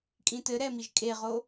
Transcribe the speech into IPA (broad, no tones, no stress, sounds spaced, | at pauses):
kʼ ĩ t ɘ ɾ ɛ m i ʒ kʼ e ʁ o